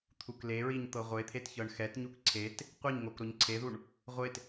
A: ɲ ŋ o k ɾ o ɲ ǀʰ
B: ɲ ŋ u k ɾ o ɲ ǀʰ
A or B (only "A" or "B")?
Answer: A